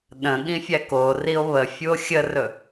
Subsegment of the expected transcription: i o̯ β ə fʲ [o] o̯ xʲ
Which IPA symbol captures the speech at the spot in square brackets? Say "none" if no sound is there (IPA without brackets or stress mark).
u